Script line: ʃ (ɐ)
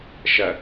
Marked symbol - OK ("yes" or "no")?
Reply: yes